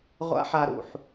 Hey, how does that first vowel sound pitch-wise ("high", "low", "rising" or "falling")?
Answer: high